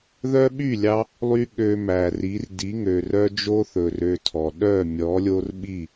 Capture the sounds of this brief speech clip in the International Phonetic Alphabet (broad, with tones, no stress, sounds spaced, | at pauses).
ð œ˦ ɓ y˦˨ lʲ ɑ˧ | lˠ y˧ ɠ ø˧ m æ˨ r i˨˦ r d i˨˦ ŋ ø˨ r œ˦ d͡ʒ o˦ θ ɵ˨ r ø˧ tʰ ɔ˨ ɗ œ˦˨ mʲ ɔ˨˦ lʲ o˦ r ɓ i˦˨